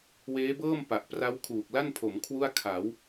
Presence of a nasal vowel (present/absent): absent